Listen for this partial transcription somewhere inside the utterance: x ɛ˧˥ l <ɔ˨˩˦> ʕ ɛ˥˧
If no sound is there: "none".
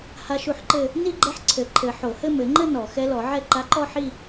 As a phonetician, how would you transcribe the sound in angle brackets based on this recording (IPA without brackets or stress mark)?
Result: ɔ˨˩˦